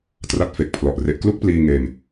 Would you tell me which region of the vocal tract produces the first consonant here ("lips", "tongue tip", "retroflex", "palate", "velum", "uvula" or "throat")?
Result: tongue tip